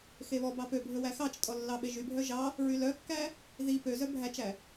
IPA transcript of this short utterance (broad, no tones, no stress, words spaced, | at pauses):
xeβɔbɑ pø bʱɵwæxɑt͡ʃtʼɔ lːɑɓeʒybʱœ ʒɑ | ɹylœkːæ | ði pøzœ bʱæt͡ʃæ